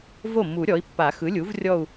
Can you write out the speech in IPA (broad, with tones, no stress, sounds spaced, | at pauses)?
v o˥˩ mː u˨˩˦ ɾʲ ɔ˩˥ i̯ pː a˨˩˦ x ɯ˩˥ lʲ u˩˥ v rʲ ɔ˥˧ u̯